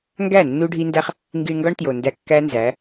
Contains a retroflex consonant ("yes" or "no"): yes